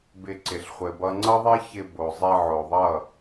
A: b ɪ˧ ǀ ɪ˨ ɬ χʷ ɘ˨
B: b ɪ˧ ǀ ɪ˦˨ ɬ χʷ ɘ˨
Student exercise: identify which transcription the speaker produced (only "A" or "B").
A